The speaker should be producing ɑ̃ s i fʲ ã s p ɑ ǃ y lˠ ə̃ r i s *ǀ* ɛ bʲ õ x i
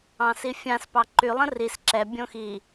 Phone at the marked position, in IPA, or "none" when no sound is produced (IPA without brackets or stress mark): ǁ